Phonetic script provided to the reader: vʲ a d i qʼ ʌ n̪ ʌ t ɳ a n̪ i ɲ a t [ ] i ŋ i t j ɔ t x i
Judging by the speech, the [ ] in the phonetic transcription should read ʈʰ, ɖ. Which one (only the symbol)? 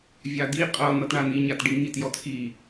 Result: ɖ